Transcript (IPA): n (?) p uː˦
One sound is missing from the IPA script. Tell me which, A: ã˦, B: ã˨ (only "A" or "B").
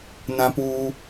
A